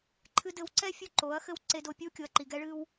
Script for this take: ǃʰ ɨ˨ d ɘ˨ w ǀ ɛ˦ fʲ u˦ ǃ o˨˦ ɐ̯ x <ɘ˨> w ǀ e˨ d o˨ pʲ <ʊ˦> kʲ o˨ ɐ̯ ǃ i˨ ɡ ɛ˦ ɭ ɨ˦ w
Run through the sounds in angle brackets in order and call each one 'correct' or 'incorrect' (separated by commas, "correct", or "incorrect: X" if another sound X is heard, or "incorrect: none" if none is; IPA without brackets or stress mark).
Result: incorrect: ɘ˦, incorrect: u˦